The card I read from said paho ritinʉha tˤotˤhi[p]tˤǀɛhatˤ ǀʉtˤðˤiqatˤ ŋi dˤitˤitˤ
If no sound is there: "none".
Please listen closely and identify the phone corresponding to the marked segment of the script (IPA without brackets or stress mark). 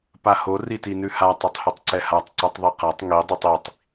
none